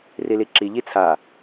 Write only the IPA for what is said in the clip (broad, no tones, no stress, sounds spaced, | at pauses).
r i l i ǁ i ʎ i t͡sʰ a